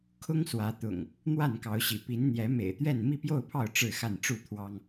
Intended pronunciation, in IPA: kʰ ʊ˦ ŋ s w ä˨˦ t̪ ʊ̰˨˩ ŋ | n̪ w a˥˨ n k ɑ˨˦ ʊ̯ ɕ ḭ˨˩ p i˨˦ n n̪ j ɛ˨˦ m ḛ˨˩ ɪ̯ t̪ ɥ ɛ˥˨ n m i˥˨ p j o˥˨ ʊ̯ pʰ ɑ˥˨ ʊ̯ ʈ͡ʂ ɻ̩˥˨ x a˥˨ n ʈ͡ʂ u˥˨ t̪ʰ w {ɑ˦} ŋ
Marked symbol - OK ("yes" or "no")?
yes